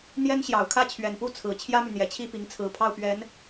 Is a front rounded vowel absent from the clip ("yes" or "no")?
no